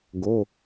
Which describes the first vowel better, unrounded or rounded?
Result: rounded